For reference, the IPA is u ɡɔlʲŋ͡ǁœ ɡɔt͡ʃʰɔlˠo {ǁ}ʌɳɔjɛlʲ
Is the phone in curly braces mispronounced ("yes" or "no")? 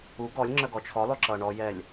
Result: no